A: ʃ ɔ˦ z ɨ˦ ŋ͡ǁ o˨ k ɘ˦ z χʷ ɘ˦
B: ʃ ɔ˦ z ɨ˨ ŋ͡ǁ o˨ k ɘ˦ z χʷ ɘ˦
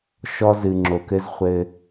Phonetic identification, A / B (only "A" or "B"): B